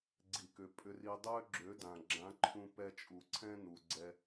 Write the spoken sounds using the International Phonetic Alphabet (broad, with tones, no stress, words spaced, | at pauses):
ɡ͡ǀi˨kʏ˨ pʼʏ˧ri˧ dˤø˦ɡ͡ǁø˨˦dã˨ ɡ͡ǁã˨˦ǃʰũ˧pɛ˧ t͡ʃʼu˨ǀʰɛ̃˦ nu˨ɡ͡ǀɛ˧